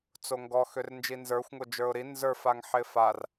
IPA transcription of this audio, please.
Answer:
t͡s o ŋ ɡ ɔ x ø r n d͡ʒ i n z ə˞ xʷ ŋ o d͡ʒ ə˞ ʊ̯ ɾ i n z ə˞ f a ŋ ħ ɪ f a r

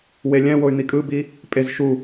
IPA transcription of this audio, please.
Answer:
w e lʲ ɛ̃ w o y̯ n̪ i kʼ ɯ b i | pʼ e z ʃ u

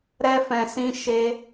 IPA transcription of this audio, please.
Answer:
ɾ ɛ˦ f ɛ̃˧ s ĩ˦ ʃ e˦

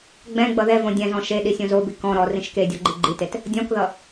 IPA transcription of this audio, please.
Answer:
ɡ͡b ɛ̃ ɡ͡b ʌ ð ɛ v õ dʲ ɛ̃ z ɔ̃ ʃ e ɗ i sʲ õ z o b i k ɔ̃ ɾ ɔ r ĩ ʃ k e dʲ ɔ ɡ͡ǃ i ɡ͡ǃ i t e t | dʲ ɔ̃ k ð ʌ

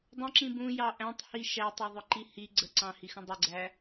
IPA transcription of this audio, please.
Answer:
dˤ ə̃ ǁ ĩ b ũ j ɑ ʔ æ̃ tˤ h i ʃ æ tˤ ʌ ðˤ ʊ ǃ i h i ɡ͡ǀ ə ǀ ɑ̃ h i x ə̃ dˤ ɪ ɡ͡ǀ æ

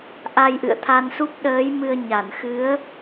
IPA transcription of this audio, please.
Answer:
ʔ a˧ j ʔ ɨ̰˧˨ ə̯ t̪ʰ a˧ n s u˦˥ p̚ ɗ əː˨˦ j m ɨ˧ ə̯ ɲ a˧˩ n x ɨ˨˦ ə̯

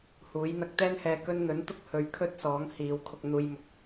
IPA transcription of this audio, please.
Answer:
h uː˨˥ j n̪ ɐ˧ k̚ t̪ ɛː˥ n h ɛː˧ k ɵ˥ n n̪ ɵ˨˥ n t̪ ʊ˥ k̚ h ɵ˨˧ ɥ kʰ ɵ˥ t̚ s ɔː˨˥ ŋ h iː˨˧ w kʰ ʊ˧ k̚ n̪ uː˧ j m ʊ˧ k̚

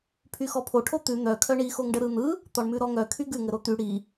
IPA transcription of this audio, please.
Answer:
pʰ y x ɔ pʰ o ʈʰ o t̪ ʉ n̪ œ kʰ œ ɳ i x o ŋ ɖ ə ɾ ɯ n̪ ɯ | t̪ ɔ ɳ m ʉ ɾ ɔ ŋ œ kʰ y ɡ ʉ ŋ ə ɾ o t̪ y ɽ i

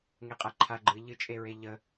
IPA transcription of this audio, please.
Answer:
ŋ e qʼ a ǃʰ a ɡ͡ǃ ɨ ʎ ɨ t͡ʃʼ e ɹ e ʎ ə

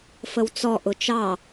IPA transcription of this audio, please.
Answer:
f ə w t͡s ɔ ʔ ʊ t͡ʃ ɑ

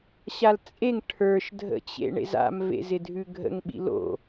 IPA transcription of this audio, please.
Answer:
ɕ a l t͡sʼ e ŋ ʈʰ ə˞ ʃ dʱ ə̰ t͡ɕ ḛ ɳ ḛ z a̰ m v ḛ z ɪ dʱ ʉ ɡʱ ə̰ ŋ ɓ ḭ l o̰

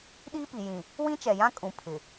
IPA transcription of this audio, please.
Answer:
ɗ iː˦ p i˨ j ĩ˨ | w ĩ˦ t͡ʃ ɛ˨ j ã˦ kʼ ũ˨ pʰ ɪ˨

